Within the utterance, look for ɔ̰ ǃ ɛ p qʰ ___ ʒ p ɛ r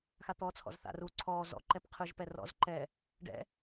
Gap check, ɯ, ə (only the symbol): ɯ